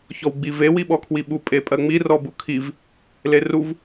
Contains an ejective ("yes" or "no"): yes